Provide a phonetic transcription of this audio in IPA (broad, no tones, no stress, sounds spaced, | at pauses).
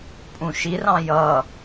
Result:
pʼ ũ ʃ i r ɑ̃ j ʌ